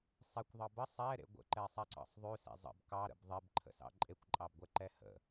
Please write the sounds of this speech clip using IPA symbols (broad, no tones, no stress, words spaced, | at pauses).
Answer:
sˤekʷðˤɑ bə sˤɛɾḛ ɡʷə̰ǃɛsˤɛǀɑ̰sˤ ðˤʉsḛ zˤə̰b kɑɾə̰b ðˤebǃʰə̰sɑ̰ ǃʼekʷǃʼɑbɡʷɛǃɛ hə̰